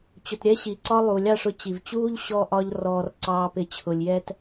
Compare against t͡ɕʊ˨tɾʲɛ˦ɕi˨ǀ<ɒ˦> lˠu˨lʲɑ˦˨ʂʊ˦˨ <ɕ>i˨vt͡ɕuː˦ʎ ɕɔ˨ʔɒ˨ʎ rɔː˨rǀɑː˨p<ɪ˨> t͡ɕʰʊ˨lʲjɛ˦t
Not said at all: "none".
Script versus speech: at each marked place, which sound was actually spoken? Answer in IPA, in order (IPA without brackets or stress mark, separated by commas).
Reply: ɒ˦, t͡ɕ, ɪ˨˦